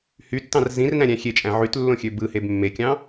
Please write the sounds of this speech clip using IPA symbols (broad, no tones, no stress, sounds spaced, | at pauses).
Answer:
h y tː ɑ̃ r z ĩ r n æ̃ ɾʲ æ̃ xʲ e t͡ʃʼ æ̃ ʕ y t lː õ xʲ ø b ɯ h e b mː e kʲ ɑ̃